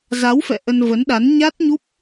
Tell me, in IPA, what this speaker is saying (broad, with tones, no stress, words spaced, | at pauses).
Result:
za˨˦wfɛ̰˧˨ ʔə˧nvə˨˦nɗa˨˦n ɲa˦˥t̚ɲu˦˥p̚